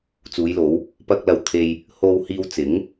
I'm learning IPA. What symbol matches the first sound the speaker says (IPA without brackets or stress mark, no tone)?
t͡s